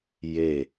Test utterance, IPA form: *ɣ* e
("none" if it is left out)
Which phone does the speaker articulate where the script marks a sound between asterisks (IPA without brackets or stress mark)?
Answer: j